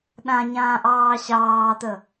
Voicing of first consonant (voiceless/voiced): voiced